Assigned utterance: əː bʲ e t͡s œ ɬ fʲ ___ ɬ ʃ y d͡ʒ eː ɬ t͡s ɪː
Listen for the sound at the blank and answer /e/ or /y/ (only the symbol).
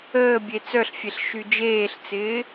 e